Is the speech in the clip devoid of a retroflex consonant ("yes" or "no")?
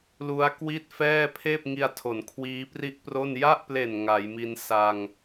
yes